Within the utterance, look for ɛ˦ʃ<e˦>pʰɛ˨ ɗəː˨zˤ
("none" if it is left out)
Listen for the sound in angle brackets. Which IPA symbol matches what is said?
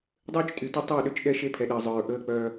e˦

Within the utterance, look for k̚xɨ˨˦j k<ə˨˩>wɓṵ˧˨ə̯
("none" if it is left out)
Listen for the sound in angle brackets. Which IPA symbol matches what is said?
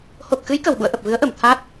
ə˨˩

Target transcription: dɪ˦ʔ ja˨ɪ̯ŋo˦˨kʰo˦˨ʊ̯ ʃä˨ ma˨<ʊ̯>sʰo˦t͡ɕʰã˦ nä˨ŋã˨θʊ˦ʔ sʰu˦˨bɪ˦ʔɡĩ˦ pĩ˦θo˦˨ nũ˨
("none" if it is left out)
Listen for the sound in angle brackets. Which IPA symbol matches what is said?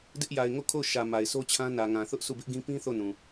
ɪ̯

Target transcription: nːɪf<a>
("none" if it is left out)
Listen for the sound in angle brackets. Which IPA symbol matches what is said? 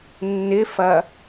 ɐ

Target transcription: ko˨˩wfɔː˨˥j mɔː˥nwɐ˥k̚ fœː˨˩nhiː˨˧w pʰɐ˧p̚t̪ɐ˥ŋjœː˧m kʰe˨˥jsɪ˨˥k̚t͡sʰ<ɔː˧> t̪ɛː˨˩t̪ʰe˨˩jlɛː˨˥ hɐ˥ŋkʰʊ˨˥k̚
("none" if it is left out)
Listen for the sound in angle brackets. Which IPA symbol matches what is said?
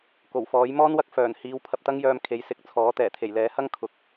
ɔː˨˥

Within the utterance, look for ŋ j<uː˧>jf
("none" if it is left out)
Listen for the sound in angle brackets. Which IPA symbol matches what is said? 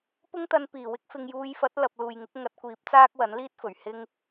uː˧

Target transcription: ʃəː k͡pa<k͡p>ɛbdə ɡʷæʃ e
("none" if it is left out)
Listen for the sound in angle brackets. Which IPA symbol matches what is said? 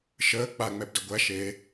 ŋ͡m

